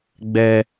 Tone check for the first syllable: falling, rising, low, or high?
low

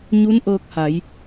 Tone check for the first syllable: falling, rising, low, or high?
rising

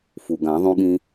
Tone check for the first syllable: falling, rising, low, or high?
low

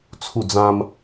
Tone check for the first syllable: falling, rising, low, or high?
falling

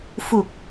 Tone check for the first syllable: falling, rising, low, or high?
low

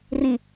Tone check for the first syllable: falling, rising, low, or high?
falling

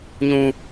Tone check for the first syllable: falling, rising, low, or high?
low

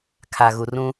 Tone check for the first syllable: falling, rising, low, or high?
low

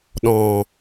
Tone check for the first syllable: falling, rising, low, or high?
low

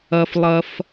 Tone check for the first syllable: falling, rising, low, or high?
high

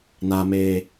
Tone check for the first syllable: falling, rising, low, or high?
low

